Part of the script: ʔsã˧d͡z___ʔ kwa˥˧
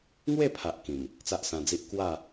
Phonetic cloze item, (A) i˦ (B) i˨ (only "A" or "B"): A